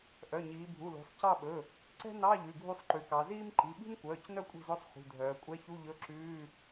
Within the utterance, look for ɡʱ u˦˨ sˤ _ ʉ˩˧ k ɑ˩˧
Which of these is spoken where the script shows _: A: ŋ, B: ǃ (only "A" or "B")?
B